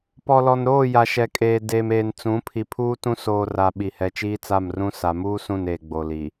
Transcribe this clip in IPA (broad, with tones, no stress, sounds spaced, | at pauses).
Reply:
p ɔ˨ l ɔ˨ n ɾ oː˦˨ j a˨ ʃ ɛ˨ kʼ eː˨ d eː˨ m eː˨ n t͡s ũ˨˦ pʰ i˨ pʰ uː˦ t ũ˦ s oː˨ r a˨ ɓ i˨ h ɛ˨ t͡ʃ iː˦ t͡s a˦˨ m r ũ˦ s a˨ m uː˦ s ũ˦˨ n eː˨ ɡ͡b o˨ l i˨